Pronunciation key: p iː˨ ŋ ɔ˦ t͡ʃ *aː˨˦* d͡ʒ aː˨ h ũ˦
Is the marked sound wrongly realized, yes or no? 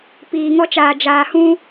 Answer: yes